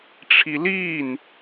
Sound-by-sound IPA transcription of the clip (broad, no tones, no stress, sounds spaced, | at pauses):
ʈ͡ʂʰ i l iː n